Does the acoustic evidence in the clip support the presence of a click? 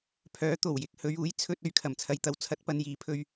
no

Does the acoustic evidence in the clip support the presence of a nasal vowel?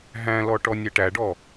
yes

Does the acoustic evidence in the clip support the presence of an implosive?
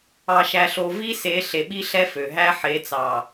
yes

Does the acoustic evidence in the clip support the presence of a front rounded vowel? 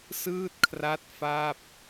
no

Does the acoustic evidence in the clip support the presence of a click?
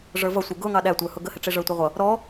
no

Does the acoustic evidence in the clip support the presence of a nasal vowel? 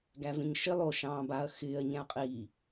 yes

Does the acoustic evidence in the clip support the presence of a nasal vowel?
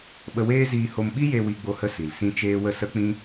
yes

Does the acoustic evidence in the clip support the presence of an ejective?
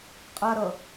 yes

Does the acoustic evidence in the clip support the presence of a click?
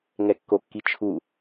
no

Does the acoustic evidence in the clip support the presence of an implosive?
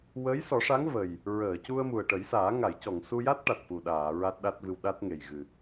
yes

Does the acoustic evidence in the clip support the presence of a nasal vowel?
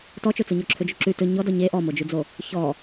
no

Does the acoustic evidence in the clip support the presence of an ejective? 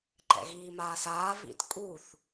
yes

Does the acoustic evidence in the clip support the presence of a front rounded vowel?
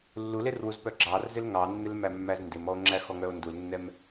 yes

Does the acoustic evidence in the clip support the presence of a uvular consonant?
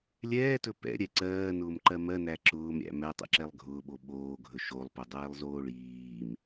no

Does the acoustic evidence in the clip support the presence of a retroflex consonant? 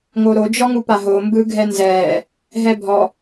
no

